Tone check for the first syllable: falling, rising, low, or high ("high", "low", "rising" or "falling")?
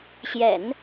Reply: low